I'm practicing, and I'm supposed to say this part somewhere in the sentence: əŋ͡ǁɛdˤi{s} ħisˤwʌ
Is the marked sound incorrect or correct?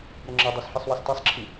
correct